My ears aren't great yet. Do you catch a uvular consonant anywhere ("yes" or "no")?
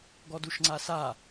no